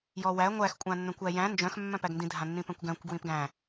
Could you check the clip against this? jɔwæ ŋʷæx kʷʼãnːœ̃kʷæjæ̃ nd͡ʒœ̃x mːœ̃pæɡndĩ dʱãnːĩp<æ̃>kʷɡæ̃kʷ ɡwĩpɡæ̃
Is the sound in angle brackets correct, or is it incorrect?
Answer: correct